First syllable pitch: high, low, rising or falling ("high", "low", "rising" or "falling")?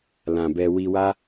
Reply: low